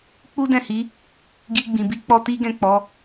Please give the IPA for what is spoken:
k͡p u˦ d ɛ̃˦˨ h i˨˦ | ɡ i˧ ɡ͡b ĩ˨ b i˧ k͡p ɔ˧ t i˦ ɡ ɛ̃˦˨ k͡p ɔ˨˦

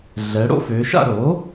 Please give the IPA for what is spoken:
ɮ ɛ˧˥ ɽ o̰˥ f ø˧˥ ʃ a̰˥ ɾ o˩˥

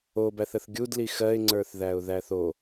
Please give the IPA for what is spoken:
o b æ θ ə θ ɡʲ u d l i x ɜ ɪ̯ ŋ͡ǀ ə˞ θ ð æ ʊ̯ ð æ θ o

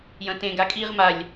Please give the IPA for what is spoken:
j ɐ̃ t ẽ ɡ a kʼ i ʁ m a lʲ

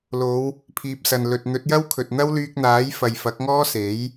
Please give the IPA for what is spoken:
l o˨˧ w | pʰ iː˨ p̚ s ɐ˨ n l ɵ˨ t̚ n̪ ɵ˨˥ t̚ j ɐ˥ w kʰ ɵ˨ t̚ n̪ ɐ˥ w l yː˧ k̚ n̪ aː˨˥ j f ɐ˨ j f ɐ˨˥ k̚ ŋ ɔː˥ s e˨˥ j

